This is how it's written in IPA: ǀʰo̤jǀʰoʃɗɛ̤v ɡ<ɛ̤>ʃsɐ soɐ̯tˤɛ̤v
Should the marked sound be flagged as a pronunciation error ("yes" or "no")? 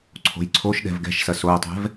no